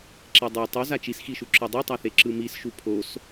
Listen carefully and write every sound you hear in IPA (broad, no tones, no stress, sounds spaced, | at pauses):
ǁ e dˤ o tˤ u z a t͡ʃ i s x i ʃ u ǁ ɯ dˤ i tˤ a θ e ǁ ɯ m i s ʃ u pʰ o s